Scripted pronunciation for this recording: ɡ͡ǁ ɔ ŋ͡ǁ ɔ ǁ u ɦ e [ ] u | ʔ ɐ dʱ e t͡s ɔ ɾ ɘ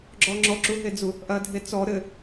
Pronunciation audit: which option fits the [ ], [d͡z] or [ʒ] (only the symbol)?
d͡z